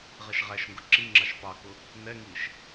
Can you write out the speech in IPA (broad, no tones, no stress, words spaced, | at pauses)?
ʁɛʃʁæʃŋɡʊ ǁi ŋ͡ǁɑʃpɑkʊ | nɛŋiːʃ